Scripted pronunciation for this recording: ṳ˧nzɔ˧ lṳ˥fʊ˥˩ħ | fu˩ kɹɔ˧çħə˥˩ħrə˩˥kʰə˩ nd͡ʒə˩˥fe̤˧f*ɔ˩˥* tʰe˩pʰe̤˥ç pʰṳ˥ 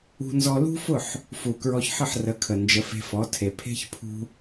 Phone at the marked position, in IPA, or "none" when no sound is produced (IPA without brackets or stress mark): ɔ˩˥